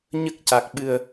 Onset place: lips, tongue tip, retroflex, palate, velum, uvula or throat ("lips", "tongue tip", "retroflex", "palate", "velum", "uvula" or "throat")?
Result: palate